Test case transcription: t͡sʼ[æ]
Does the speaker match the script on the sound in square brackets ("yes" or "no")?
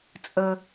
no